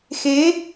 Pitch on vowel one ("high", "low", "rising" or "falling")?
rising